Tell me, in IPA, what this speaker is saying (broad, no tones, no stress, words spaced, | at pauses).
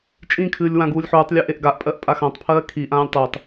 t͡ʃʼĩkʰɨːlʲ wãɡuːlʲħuːtˤlʲø ʔeʔɡaʔpʼɜʔ pʼaxãtˤpʰɜː kʰiʔãːlʲ tˤøtˤ